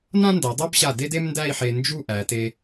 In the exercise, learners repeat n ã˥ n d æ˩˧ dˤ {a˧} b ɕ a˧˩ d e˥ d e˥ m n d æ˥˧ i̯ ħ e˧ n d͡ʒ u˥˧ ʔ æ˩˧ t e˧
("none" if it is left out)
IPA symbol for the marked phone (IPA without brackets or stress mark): a˥